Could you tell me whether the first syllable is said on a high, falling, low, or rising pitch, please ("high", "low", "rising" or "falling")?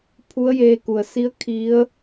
rising